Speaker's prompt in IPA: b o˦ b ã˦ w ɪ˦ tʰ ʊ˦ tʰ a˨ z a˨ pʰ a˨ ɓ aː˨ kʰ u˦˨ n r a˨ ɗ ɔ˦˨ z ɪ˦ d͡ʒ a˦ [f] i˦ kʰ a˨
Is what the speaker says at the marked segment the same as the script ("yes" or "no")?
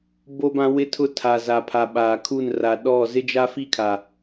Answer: yes